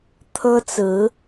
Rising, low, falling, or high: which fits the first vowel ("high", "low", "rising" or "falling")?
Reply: high